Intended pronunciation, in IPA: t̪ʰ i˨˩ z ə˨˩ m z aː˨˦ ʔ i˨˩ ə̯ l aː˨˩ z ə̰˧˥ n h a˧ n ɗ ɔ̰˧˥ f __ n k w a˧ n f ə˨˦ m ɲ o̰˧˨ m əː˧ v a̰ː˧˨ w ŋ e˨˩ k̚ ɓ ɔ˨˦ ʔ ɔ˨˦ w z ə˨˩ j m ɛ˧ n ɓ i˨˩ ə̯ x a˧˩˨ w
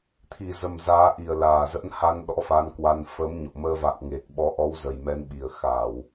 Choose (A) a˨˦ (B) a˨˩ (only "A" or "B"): A